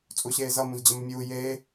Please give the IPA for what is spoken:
t͡sʼuɕeːzʌ mũzd͡ʑəməmʲuː jeː

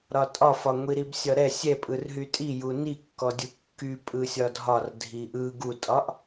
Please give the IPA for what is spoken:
ɾɒtʼɒfɒ ŋʷiɾibsʲɒɾɛ sʲɛpʼɯrɦy tʼiju nikːɔ dʲukːy pʼɯsʲɒdʱɒr dʱiʔɯ ɡutʼɒʔ

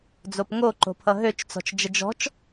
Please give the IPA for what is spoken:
d͡zopŋoǃo̤ pʰʌɦøt͡ʃt͡sɔ̤t͡ʃ d͡ʒəd͡ʒɔ̤t͡ʃ

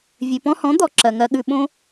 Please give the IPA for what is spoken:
vʲʉ˨pɔ̃˧hɔ̃˨˦ d̪ɔ˨ ǁɜ˨ŋɜ˧ɠʉ˧ɓõ˦

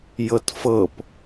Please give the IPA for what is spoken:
jɤtfɤp

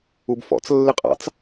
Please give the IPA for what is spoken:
ubfɔ̰t͡s lːɪqʼɑ̰t͡s

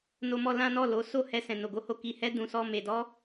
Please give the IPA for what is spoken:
no˧mɔ˧lã˦nɔ˦˨ lo˨˦ so˦˨hɛ˧ sɛ̃˨no˨ɡo˧ho˧ ki˨ hɛ˧ dũ˨sɔ˧ me˨ dɔ˧

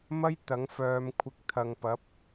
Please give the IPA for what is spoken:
mɐ˥j t̪ɐ˨˥ŋfœː˨˧mkʷʰɪ˧k̚ t̪ʰɐ˨ŋpɐ˨˥p̚

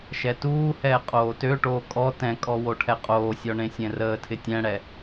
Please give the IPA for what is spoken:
ʃɛtuːhɛː qʼoːtøʈoː kʼɔ tɛ̃kʼɔ woʈʰɛqʼoːsʲɔ ɳẽsʲɛ̃rəːtʰɪ tʲɛ̃ɽɛ

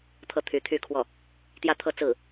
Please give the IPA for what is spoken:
t̪ʰɤ˥˩t̪ʰy˧˥t̪ʰy˥˧kʰwɔ˥˩ | t̪jä˥t̪ʰɤ˥˧ t͡sɹ̩˥˩

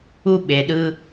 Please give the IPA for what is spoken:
u˥ɓe˨ɗɯ˦

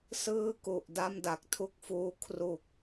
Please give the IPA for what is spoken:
sɯː˥˩ku˨˩ʔ da˥˩mda˨˩k̚tʰu˥˩k̚fuː˦˥ kʰru˨˩k̚

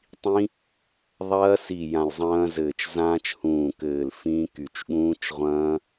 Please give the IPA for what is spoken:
tˤĩ˦˥ | ðˤɐː˦˥si˧˩ jã˧˩lzˤɐ̃ː˦˥zɘː˧˩t͡ʃ zãː˦˥t͡ʃhũː˧˩kɘː˧˩l fĩ˦˥ky˧˩t͡ʃ ɠũː˦˥t͡ʃʁʷɐ̃ː˦˥

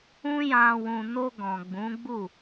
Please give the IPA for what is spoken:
ũ˦jã˧ wũ˨no˧ ɡɔ̃˨ɡ͡bũ˨˦ ɡ͡bu˦˨

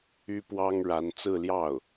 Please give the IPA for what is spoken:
y˥pwɑ˥ŋ ɻa˧˥n t͡sɹ̩˥˧ljɑ˥˩ʊ̯

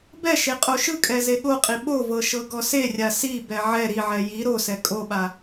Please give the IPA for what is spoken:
bɛʃe qʼoʃɯkʼɛ zeɠoqʼi ɓovɤ ʃɤɡɔserʲa sibɛ ʕɛ ɾiʕɛ ji ɾosɛ kʼoɓa

